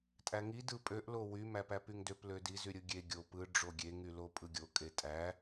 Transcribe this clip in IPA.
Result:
tʼ æ ŋ i d ɯ pʼ ø ʔ l o w y m æ p æ p y ŋ d ø p l ø d i z y ɾʲ ɯ ɡʲ e ɡʲ o p ɯ ɖ͡ʐ o ɡʲ e ŋ y l o pʼ ɯ ɡʲ o kʼ e tʼ æ

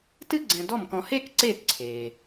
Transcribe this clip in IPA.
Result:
t ɨ˥ ɡ͡ǀ ɛ̃˧ d ɔ˥˩ m k ɔ̃˧ h eː˥ k ǀ eː˥˩ t ǀʰ eː˩

